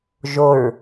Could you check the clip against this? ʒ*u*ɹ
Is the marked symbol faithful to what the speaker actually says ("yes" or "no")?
no